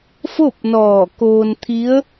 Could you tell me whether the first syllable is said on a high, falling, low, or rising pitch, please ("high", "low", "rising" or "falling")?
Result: falling